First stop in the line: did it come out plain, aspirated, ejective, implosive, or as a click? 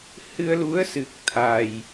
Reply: plain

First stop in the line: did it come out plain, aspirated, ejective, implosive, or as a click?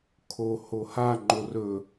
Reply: aspirated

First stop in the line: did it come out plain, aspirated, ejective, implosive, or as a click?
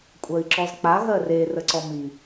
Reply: ejective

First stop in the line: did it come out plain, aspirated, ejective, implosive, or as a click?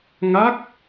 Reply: plain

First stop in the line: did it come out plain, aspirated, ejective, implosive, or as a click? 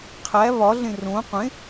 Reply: aspirated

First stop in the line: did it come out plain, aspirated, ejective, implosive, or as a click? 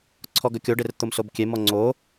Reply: click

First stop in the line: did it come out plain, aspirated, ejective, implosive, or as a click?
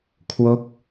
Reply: aspirated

